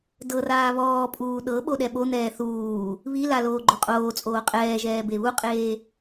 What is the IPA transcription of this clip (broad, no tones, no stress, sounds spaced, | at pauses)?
d ɤ r aː β ɔː pʼ uː ɗ ɤ ɓ o ɗ ɛ ɓ o n̪ ɛː θ uː | β i l a l oː ɡ͡ǃ o qʼ oː t͡sʼ oː qʼ ɛː ʒ ɛː b e β u qʼ eː